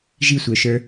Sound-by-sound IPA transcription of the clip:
ʒisʷə˞ʃə˞

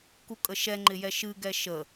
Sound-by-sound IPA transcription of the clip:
kukʼəʃɛ ŋ͡ǃɪjɛʃɨ ɡɛʃə

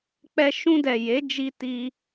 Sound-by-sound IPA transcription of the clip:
k͡pɛ˧ʃũ˧dɛ˨ je˨˦d͡ʒi˧ti˧

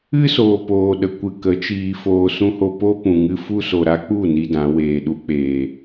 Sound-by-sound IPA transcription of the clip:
ɨ˦soː˨poː˨ɗə˨ kʷɨ˧kə˨˦t͡ʃiː˧ foː˧sũ˦ho˦ po˦pũ˨ ŋɨ˧fu˦ so˨ɾa˦k͡pu˦˨ ni˦dã˨˦weː˧ ɗu˧k͡peː˨

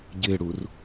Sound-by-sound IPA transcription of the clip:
ɟɪːɽur

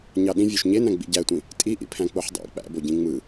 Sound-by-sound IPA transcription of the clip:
ɲɑɗĩ vʲoʃɲenæ̃ ɡ͡bḭɟætʷĩ | tʼiʔḭpʰæ̃ k͡poħdˤæ̰ k͡pæ̰bo ɟĩŋ͡mɯ

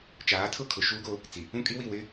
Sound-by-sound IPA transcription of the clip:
t͡ʃaː˨˦tʰʊ˦kʰʊ˨ ʃuː˦ɡo˦ | t͡si˨ | ũ˦kʼi˦wi˦˨ wɪ˦

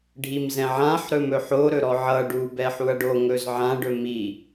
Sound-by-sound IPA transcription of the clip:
ɖʱimzɛ̃ʕãħ ɾɵmɵħo ɾɵɾɔʕʌ ɖu bɛħuɐ̯ɖo ŋɵzʕã ɖɵmi

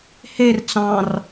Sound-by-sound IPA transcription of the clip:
her t͡sɑ̃r

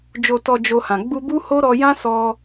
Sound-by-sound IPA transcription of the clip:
d͡ʒo˨tɔ˨ d͡ʒo˧hã˨ ɡ͡bu˧bu˦ho˦ ɾɔ˧jã˦sɔ˧

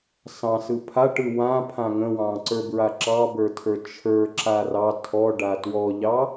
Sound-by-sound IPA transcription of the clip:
sɑ̃sɯ pʰaʈɯ wãpʰã ŋə̃wɑ̃ǀə˞bɹa ǁɑbə˞tʰə˞ t͡ʃʰə˞ǁa rɑ tʰɔɖa twɔʎɑ

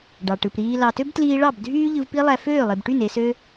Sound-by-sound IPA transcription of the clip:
ɖɑ˨ʈɯ˨pɾiː˧ lɑ˨tø˦btliː˧ɭɑ˦˨b dʱyː˦ʎɯ˧vpi˦lˠæ˧ føː˦˨lˠe˨bʈy˦˨n e˧sø˦

